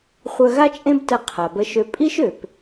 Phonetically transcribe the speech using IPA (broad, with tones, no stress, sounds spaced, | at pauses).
χʷ œ˧ ɣ a˥ t͡ʃʼ ẽ˥ b t ə˧ qʰ a˩ b ə˧ ʃ ø˧ pʼ i˥ ʃ ø˩ p